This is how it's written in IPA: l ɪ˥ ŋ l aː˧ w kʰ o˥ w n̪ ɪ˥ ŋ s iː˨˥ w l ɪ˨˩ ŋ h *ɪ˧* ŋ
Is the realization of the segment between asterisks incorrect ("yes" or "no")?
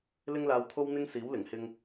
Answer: no